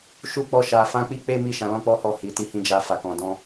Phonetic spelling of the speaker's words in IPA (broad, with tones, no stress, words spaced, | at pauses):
ʃu˦k͡pɔ˦˨ʃa˧ fã˦k͡pi˦ k͡pe˦mi˦˨ ʃã˨˦lɔ̃˦k͡pɔ˦hɔ˦˨ hi˧ti˦ hĩ˦d͡ʒa˦fa˧ kɔ̃˧dɔ̃˦